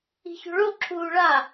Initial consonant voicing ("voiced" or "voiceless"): voiceless